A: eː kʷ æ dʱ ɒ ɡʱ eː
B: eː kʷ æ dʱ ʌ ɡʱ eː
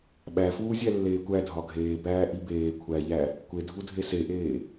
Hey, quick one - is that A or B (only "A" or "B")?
A